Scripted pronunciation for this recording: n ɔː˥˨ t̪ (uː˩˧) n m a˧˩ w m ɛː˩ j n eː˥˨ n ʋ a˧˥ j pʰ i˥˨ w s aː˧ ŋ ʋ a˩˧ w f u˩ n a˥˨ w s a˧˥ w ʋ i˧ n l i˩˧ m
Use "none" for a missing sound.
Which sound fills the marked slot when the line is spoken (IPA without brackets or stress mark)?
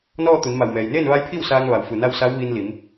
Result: u˩˧